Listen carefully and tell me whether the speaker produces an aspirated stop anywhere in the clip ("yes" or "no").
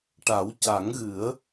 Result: no